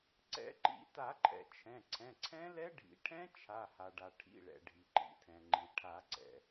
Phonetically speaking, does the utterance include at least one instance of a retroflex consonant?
yes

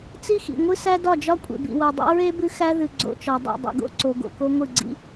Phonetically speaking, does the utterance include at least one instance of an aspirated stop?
no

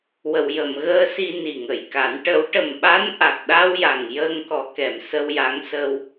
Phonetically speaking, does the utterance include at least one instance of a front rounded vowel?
no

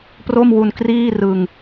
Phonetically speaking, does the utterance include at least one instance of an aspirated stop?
no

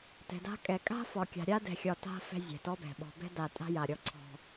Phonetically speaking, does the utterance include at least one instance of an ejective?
yes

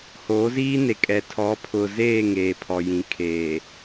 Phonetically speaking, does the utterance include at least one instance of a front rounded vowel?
no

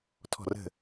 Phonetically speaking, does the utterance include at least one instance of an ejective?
no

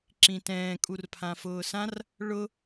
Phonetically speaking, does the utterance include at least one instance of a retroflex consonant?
yes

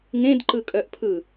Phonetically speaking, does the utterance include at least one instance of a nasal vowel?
yes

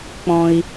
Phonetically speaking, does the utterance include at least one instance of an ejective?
no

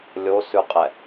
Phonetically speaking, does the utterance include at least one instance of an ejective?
yes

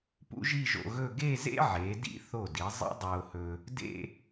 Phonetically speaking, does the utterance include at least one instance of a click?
no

